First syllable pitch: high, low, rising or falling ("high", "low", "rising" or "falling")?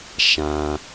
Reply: low